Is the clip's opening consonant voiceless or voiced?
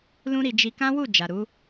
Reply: voiced